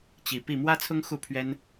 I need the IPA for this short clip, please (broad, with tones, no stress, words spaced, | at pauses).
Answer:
t͡ɕi˨˦ pi˥˨ mwä˦t͡sʰʊ˦ŋ xu˥˨pʰɥɛ˦n